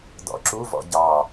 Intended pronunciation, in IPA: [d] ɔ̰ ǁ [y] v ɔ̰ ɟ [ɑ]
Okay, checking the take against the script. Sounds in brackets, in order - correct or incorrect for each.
correct, incorrect: u, correct

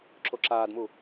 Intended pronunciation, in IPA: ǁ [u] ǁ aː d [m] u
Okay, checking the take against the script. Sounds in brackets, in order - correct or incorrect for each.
incorrect: o, correct

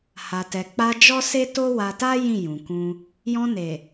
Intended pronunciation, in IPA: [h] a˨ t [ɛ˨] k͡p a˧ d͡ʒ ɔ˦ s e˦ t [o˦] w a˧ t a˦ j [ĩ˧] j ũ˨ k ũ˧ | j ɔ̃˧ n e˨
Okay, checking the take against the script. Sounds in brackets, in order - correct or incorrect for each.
correct, correct, correct, incorrect: ĩ˦˨

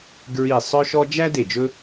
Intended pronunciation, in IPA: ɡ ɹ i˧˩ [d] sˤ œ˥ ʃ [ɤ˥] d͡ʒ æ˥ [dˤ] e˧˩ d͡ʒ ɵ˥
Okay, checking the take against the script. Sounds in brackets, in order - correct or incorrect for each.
incorrect: none, incorrect: ɔ˥, incorrect: d

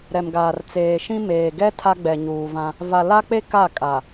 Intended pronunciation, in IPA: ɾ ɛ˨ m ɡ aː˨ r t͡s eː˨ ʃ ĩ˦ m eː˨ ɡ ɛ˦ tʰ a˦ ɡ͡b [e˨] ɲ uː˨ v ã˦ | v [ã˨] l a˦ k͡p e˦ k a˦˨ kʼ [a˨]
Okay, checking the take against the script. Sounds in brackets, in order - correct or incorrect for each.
incorrect: ɛ˨, incorrect: a˨, correct

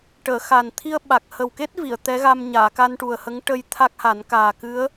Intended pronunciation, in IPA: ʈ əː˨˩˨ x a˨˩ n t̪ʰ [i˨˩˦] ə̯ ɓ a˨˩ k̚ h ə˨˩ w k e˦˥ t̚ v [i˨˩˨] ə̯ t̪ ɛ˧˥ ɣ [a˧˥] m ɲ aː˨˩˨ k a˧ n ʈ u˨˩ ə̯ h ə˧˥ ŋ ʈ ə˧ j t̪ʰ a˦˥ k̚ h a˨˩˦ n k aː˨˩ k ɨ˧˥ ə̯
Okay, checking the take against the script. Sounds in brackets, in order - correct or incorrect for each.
incorrect: i˧, correct, incorrect: a˧

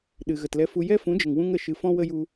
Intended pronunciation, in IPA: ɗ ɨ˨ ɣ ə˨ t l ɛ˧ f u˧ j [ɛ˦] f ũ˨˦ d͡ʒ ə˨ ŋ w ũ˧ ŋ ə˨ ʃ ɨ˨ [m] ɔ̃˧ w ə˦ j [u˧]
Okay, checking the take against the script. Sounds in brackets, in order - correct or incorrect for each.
correct, incorrect: f, correct

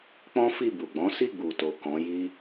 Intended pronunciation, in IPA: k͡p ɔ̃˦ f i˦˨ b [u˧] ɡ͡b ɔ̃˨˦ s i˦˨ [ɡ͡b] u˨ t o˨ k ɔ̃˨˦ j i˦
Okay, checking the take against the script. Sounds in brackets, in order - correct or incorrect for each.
incorrect: u˨, correct

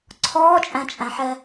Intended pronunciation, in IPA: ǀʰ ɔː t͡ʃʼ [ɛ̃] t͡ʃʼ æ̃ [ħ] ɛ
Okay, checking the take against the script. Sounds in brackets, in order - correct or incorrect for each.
incorrect: æ̃, correct

